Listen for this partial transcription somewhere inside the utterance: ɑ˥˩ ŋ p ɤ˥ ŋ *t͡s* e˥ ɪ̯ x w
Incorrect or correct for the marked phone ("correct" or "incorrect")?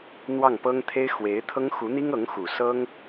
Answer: incorrect